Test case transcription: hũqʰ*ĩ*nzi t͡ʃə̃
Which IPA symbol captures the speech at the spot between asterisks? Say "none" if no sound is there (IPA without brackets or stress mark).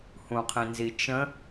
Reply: ĩ